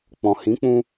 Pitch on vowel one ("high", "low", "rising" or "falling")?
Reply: low